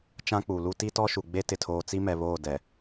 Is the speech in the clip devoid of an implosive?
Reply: yes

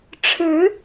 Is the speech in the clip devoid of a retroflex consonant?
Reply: no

